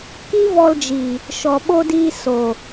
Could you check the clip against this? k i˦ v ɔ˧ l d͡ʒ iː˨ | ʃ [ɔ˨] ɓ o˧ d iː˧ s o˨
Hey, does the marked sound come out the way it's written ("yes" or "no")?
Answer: yes